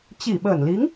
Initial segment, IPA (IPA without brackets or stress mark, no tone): t͡ɕ